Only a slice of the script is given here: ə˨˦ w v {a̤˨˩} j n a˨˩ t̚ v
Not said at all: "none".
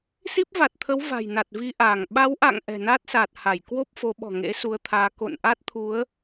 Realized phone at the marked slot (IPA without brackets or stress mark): a̤˨˩